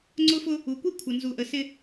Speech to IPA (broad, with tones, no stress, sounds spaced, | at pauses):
ŋ͡ǀ ʊ˦ f ʊ˦ | u˨ kʷ i˦ kʷʰ ə˨ n z u˨ ʔ ə˨ s ɪ˦